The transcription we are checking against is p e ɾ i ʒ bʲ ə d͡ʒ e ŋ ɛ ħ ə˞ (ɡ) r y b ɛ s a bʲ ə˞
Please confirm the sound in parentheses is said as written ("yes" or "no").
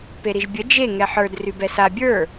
no